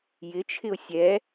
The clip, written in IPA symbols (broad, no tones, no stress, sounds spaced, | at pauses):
j ɪ t͡ʃʰ ɪ ʊ̯ sʲ ɛ